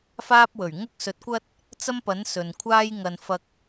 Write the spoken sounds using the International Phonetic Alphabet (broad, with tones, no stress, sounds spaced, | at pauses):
f aː˥ p̚ w ɵ˨˩ ɥ ŋ ʊ˥ k̚ s ɵ˨˥ t̚ kʷ ɐ˥ t̚ | t͡s ɐ˥ m p ɐ˨˥ n s ɵ˨ n kʷʰ aː˥ j ŋ ɐ˧ n f ɐ˧ k̚